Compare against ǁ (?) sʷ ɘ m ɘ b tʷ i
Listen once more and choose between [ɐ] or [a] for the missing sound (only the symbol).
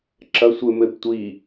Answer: ɐ